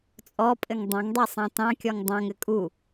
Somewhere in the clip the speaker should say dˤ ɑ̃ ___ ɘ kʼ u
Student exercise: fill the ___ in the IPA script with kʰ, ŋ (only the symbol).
ŋ